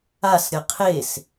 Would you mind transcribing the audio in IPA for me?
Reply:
a s ɾʲ ʌ qʰ e s

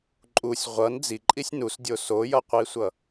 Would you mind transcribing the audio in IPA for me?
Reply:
ǃʼ u sʲ ʁʷ ʌ n d͡z i ǃʼ i sʲ n u s dʲ o s o j ʌ qʷ i sʷ ʌ

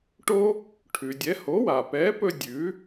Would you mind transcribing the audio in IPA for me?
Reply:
ʈ o˥ | ʈʰ ʉ˩ dʲ ɛ˩˥ h o˩˥ w a˩ p ɛ˩˥ p ɵ˧ dʲ ʉ˩˥

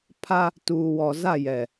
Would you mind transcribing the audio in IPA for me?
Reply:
pʰ a˦ | t uː˨ w ɔ˨ z a˦˨ j ɛ˨

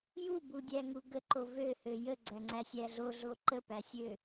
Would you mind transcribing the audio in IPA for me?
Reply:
j u b u dʲ æ ŋ u ɡ ə ǃ o v ø h ø j ə ɡ͡ǀ æ ŋ͡ǀ æ sʲ æ ɮ o ɮ o ǃ ə p æ sʲ ø

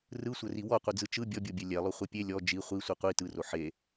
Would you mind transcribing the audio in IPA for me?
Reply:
r ɯ sʷ ə r i w ɔ qʷ ɯ d͡z ɯ t͡ʃ ɯ bʲ ɔ bʲ o bʲ ɛ lʲ ɛ lˠ o χʷ ɛ pʲ e lʲ ɔ d͡ʒ i χʷ i sʷ i qʷ i t ɯ r o ħ e

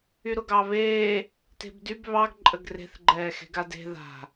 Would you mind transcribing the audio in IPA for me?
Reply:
y ɾ ʊ ɡ ɑ β eː | t e̤ b d y b β ɑ ɡ ǃʼ ə ɡ r e̤ θ ɡ͡ǃ ɛː x e̤ ɡ a d e̤ ð a̤

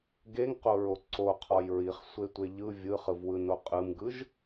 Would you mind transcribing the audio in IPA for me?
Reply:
ɡ e ŋ q o ɹ o ǀ o qʰ ɔ j ɹ i χ sʷ e tʷ e ʎ ɯ vʲ ɯ χ ɯ v w ɯ n o qʼ ɯ m ɡ ɯ ʒ

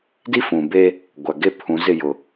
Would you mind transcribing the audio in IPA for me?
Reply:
d i˦ f ũ˨ b e˦ | ɡʷ a˨ ɡ e˦˨ pʰ ũ˨˦ z ɪ˦˨ j ʊ˨

